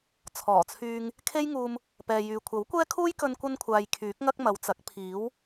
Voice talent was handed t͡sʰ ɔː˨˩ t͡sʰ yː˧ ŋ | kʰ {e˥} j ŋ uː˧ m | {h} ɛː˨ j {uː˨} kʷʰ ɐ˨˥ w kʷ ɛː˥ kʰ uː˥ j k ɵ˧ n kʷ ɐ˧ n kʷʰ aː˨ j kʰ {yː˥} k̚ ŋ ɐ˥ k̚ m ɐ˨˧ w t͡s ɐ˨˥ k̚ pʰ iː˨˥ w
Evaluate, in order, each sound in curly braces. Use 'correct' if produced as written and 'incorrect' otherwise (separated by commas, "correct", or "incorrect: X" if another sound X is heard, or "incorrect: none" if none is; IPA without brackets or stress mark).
correct, incorrect: p, incorrect: yː˨, incorrect: yː˨˥